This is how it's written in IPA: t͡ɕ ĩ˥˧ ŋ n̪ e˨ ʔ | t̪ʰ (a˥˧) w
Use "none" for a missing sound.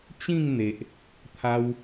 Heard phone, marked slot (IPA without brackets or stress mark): a˧